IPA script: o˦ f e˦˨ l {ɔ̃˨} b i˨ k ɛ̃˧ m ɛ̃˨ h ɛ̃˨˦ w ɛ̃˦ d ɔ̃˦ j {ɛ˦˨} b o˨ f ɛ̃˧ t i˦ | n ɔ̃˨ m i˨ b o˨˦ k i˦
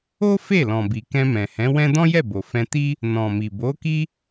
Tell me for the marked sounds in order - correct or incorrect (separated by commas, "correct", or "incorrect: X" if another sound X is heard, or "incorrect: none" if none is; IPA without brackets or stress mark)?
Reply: correct, correct